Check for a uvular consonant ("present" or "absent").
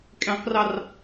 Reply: present